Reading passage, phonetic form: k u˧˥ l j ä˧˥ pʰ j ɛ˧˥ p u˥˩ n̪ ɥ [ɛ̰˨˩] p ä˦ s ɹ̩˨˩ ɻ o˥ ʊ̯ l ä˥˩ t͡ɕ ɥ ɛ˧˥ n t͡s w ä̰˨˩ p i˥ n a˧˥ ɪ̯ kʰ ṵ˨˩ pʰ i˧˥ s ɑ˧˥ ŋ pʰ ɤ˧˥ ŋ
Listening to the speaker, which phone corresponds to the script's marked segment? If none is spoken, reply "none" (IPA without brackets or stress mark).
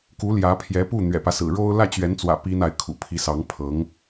ɛ̰˨˩